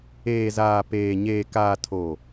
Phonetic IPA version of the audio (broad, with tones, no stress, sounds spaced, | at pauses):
eː˨ z aː˨ p eː˨ ɲ eː˨ k aː˨ tʰ oː˨